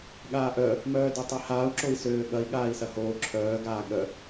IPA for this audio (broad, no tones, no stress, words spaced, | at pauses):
ɠaːʔœ | mœːdøtˤihaːu̯ ǁoi̯søːɠɐi̯ ɠaːi̯sɐhoː ǁʰœː ɡaːɠœ